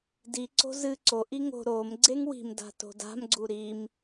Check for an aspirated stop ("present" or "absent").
absent